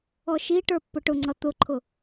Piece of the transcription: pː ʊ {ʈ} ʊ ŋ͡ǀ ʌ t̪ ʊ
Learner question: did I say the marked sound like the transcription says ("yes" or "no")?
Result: yes